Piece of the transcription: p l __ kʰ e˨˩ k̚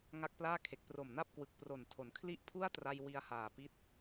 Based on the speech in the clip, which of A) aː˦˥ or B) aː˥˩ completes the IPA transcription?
B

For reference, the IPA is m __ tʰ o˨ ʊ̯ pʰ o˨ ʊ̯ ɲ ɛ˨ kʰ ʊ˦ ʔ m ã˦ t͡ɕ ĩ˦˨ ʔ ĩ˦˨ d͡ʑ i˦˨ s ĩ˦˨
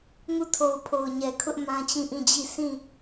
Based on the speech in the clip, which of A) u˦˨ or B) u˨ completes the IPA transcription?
A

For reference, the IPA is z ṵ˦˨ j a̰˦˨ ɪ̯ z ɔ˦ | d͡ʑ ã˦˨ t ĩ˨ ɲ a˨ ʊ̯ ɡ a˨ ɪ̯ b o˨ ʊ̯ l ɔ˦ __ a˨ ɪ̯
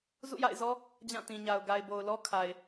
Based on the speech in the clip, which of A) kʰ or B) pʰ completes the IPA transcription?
A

